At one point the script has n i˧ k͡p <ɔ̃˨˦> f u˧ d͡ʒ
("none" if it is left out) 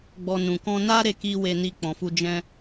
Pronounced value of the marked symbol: ɔ̃˨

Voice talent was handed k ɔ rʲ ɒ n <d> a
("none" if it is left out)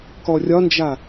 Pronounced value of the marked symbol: d͡ʒ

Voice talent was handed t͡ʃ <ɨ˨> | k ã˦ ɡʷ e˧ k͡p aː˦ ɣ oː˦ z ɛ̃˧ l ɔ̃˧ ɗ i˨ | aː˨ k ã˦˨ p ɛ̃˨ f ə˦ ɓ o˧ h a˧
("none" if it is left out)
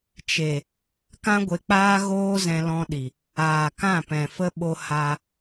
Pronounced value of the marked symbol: e˨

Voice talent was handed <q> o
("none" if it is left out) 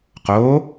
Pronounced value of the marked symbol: q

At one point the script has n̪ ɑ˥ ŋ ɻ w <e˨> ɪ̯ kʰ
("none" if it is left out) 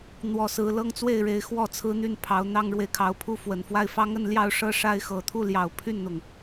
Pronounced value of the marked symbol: e˨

